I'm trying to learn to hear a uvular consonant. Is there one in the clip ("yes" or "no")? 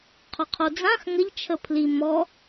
yes